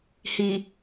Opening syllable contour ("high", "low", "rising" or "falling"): low